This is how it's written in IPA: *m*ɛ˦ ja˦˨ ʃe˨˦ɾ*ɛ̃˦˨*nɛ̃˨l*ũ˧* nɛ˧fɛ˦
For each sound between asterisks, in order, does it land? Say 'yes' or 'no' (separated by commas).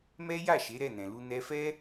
yes, no, no